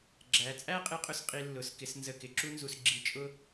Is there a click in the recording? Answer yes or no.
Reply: yes